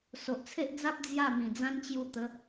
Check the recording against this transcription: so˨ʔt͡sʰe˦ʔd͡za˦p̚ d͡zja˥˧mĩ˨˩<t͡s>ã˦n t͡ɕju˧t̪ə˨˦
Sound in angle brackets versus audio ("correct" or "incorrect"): incorrect